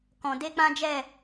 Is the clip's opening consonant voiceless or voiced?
voiceless